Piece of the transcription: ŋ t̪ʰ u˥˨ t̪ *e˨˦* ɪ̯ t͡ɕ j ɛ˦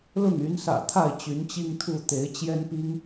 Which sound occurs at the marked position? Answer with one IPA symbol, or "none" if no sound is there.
e˨˦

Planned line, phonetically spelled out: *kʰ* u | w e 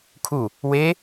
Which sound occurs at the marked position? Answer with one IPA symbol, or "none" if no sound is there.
kʰ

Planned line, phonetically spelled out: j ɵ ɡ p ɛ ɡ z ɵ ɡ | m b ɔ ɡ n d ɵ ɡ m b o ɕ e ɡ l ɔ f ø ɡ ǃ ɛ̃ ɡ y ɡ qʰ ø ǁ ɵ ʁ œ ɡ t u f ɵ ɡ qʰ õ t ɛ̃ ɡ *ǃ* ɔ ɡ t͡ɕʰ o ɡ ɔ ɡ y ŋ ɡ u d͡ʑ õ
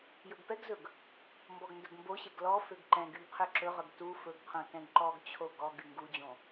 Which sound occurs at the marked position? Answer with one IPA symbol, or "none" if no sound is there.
ǃ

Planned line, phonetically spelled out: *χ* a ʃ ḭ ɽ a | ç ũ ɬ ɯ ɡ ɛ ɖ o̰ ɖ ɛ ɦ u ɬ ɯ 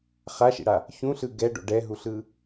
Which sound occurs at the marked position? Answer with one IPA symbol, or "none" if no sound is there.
χ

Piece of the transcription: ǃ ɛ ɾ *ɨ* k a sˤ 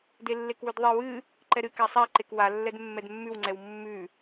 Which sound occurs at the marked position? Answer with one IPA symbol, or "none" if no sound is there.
ɨ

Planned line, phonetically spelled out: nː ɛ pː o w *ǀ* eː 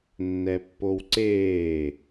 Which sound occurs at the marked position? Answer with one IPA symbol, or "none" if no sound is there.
ǀ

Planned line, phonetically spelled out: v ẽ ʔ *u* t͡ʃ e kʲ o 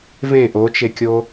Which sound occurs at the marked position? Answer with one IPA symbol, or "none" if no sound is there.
o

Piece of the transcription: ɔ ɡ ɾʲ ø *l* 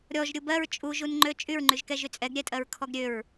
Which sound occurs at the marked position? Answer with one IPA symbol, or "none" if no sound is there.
ɹ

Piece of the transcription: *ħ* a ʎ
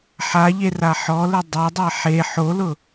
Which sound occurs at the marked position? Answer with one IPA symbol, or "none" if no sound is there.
ħ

